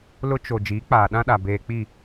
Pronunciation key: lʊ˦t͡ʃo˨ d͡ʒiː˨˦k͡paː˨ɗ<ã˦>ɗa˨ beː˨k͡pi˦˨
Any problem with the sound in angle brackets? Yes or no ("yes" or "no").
no